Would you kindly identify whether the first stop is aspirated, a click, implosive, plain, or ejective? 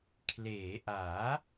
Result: aspirated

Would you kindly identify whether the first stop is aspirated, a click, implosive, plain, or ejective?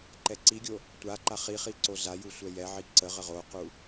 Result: click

